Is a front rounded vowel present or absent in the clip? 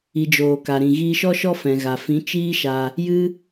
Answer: absent